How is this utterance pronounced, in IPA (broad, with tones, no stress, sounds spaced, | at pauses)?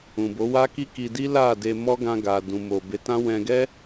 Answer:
ũ˨ b o˨˦ w a˦ k i˦ k i˧ d i˦ l a˦˨ d e˧ m ɔ˦ ɡ ã˧ ɡ a˨ d ũ˨ m o˨ b e˨˦ t ã˦ w ɛ̃˧ ɡ ɛ˦